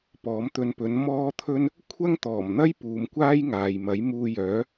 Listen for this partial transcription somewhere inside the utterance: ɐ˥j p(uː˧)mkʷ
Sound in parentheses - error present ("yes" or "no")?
yes